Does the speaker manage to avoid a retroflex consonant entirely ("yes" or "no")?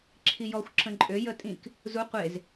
yes